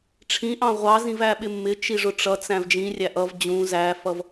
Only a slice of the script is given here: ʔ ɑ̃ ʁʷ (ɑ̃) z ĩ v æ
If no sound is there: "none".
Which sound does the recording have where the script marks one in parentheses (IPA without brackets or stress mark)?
ɑ